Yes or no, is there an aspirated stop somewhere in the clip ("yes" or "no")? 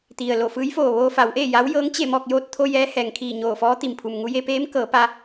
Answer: yes